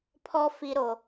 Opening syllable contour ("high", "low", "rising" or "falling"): high